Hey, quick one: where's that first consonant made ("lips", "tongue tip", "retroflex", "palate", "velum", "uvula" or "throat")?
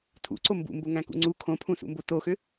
tongue tip